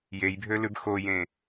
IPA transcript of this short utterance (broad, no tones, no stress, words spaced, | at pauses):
jejbʱølʉb xojẽ